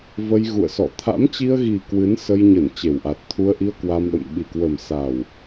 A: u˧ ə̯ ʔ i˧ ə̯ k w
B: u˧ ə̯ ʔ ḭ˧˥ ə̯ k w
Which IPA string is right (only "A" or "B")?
A